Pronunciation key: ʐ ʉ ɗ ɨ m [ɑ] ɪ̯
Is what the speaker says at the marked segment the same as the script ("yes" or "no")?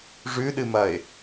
no